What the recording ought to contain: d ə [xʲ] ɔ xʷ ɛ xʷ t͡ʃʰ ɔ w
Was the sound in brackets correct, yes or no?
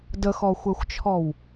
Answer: no